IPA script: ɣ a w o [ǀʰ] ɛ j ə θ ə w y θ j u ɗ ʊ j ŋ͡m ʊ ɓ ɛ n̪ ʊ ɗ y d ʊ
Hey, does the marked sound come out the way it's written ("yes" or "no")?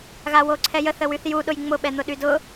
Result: yes